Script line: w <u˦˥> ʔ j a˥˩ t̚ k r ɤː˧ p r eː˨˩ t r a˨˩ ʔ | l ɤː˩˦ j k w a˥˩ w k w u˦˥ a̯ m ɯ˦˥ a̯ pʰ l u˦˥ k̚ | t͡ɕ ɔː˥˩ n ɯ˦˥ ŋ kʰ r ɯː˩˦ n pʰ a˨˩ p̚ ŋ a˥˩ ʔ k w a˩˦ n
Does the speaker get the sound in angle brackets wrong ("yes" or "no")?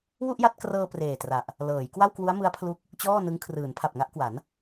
yes